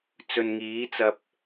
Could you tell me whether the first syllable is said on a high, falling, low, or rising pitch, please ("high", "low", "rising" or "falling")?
low